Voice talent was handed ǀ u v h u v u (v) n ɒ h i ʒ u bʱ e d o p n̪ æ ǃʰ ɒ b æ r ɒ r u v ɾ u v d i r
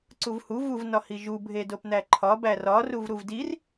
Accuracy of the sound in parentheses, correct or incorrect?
correct